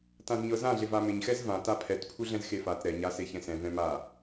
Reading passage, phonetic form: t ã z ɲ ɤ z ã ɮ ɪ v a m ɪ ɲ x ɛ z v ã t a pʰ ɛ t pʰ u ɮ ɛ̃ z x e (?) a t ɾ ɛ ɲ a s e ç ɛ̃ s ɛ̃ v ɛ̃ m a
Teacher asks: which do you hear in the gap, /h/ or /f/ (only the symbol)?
f